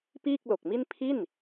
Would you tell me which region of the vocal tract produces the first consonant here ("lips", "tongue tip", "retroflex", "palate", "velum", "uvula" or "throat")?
lips